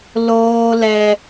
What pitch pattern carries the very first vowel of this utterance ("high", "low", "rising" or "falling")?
high